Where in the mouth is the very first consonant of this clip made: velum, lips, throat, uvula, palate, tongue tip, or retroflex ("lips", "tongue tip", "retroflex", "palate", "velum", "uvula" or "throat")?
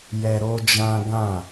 palate